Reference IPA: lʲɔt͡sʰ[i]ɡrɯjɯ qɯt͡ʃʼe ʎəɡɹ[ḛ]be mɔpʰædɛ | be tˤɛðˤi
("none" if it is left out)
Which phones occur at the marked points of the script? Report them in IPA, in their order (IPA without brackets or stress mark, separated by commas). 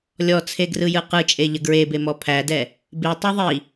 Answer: e, e